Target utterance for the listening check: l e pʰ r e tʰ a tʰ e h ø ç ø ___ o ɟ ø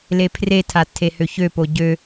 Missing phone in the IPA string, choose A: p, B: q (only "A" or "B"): A